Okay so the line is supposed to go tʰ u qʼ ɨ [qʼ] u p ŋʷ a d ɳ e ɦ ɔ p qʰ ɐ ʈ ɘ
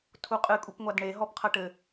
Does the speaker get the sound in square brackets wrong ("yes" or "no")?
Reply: yes